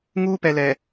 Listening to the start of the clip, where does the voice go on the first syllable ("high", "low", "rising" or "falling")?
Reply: high